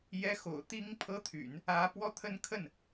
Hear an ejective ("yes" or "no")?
no